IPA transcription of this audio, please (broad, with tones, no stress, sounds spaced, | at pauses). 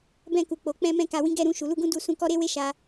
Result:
b ɛ̃˧ k u˨ k͡p o˨ k͡p ɛ̃˧ m ɛ̃˧ k a˨ w ĩ˨˦ ɡ ɛ˦˨ ɾ ũ˧ ʃ u˨ l u˧ ɡ ũ˦ d u˧ s ũ˧ k ɔ˦ ɾ e˦ w e˦ ʃ a˧